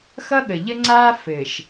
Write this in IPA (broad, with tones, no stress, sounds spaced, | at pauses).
x ʌ˦ ɠ ə˨ ʎ ə˦ ŋ͡ǀ aː˦ f ɘː˨ ʃ